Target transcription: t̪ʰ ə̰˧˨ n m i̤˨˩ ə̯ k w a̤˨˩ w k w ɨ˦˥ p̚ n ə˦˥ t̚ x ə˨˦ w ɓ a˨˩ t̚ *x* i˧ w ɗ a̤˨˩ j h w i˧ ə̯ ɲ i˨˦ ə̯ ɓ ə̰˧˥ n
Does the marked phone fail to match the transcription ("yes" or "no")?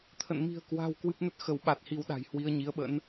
yes